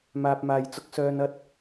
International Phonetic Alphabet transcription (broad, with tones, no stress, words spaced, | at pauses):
maː˨p̚maː˨jt͡sʊ˧k̚sœː˧n ɐ˧t̚